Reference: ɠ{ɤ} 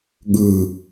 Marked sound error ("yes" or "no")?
yes